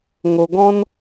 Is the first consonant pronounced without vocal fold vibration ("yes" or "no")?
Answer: no